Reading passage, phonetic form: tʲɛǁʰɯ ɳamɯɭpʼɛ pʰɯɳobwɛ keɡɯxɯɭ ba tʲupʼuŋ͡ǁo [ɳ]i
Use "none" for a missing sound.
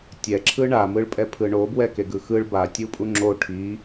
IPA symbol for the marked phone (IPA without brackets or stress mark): ʈʰ